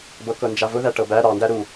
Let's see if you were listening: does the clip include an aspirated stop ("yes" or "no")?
no